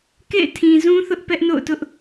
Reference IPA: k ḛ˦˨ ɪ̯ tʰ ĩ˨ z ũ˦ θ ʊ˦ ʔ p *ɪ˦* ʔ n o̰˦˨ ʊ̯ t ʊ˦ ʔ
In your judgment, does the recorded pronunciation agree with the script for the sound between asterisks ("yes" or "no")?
no